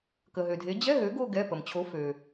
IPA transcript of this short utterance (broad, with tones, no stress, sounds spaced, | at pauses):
k ə˩ ɦ ø˩ dʱ e˩˥ d͡ʑ ɛ˧˥˧ ɦ ø˩˥ ɡ o˦˨ ɡ ɛ˩˧˩ p ə˩ m t͡ɕʰ o˩˥ f ø˩